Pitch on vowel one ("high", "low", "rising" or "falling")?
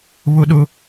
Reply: high